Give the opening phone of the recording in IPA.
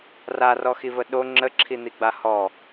r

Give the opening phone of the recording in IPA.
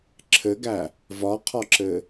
ǁʰ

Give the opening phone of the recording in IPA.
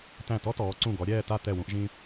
t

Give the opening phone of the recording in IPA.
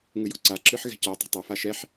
ŋ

